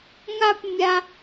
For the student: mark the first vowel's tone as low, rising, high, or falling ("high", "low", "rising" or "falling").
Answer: high